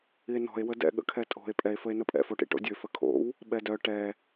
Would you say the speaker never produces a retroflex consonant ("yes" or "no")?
no